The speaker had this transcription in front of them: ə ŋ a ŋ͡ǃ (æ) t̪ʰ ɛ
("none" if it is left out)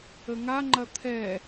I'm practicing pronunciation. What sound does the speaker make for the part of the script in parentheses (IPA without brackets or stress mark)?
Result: ɐ